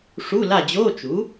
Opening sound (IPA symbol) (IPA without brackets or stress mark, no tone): ʂ